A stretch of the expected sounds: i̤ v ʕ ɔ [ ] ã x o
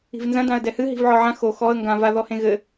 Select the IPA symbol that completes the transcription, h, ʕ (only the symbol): ʕ